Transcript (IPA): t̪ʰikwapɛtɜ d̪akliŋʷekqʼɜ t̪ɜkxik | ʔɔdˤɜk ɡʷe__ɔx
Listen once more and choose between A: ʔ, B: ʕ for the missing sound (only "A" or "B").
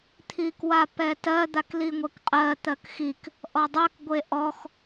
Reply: A